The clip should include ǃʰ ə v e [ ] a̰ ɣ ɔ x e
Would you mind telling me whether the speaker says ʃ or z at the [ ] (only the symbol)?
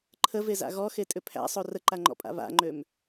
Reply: z